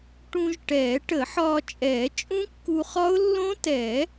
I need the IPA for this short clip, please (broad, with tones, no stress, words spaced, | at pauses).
ʈũ˧ʒ ʈɛː˨˩˦ʈə˨˩˦ħɒː˧ t͡ʃʼɛː˨˩˦t͡ʃʼũ˦˥kːu˧χɒ˦˥ʊ̯ lːõ˦˥tɛ˨˩˦